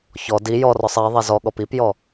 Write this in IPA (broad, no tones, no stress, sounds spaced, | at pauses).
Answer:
ç ɔ d i j ɔ r ɔ sˤ e ðˤ ɛ z ɔ ɠ ɔ p i p j ɔ